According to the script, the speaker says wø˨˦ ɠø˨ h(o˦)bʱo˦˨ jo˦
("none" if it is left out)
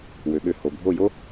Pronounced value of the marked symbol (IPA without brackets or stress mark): o˨